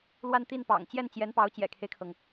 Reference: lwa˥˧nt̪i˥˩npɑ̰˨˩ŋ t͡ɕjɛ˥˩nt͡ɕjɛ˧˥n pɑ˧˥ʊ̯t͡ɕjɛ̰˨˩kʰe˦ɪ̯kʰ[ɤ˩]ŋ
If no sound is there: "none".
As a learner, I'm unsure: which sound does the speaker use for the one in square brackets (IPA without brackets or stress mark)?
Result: ɤ˩